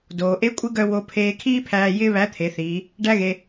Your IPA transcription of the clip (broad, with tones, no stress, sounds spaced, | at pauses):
d oː˩ ʔ e˧˥ kʷʼ ɪ˧˥ ɡ œ˧ w o˧ pʰ eː˧ kʰ iː˥ pʰ æː˧ j ɪː˥ β æ˧˥ t̪ʰ e˩˧ θ iː˩˧ | ɖ æ˥ ɣ e˧